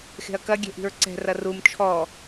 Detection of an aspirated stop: present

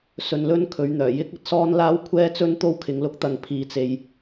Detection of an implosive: absent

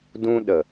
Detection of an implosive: present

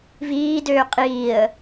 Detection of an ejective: present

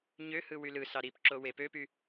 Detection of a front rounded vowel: present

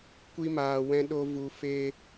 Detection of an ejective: absent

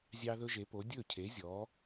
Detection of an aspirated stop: present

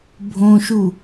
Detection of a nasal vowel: present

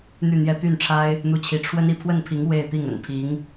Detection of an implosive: absent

